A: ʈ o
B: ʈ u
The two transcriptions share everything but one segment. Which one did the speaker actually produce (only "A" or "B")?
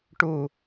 B